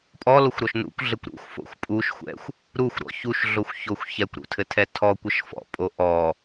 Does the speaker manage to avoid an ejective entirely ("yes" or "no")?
no